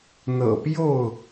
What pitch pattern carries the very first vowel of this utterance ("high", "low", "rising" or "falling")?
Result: low